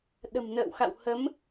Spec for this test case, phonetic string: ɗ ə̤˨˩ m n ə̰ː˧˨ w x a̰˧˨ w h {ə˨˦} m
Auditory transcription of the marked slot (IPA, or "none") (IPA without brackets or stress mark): ə˨˦